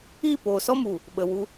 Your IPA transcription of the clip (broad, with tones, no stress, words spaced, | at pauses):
iː˦˨poː˨sɔ˦mu˨ | ɓə˨wu˧